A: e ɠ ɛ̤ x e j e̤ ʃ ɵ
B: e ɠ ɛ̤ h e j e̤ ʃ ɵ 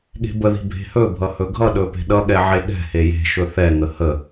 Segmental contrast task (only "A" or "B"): B